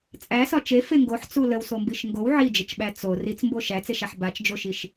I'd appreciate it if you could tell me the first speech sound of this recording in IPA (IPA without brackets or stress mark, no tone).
t͡sʼ